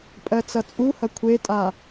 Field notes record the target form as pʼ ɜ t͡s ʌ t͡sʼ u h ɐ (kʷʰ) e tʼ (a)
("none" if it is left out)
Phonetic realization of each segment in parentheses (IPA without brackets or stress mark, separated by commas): kʷʰ, a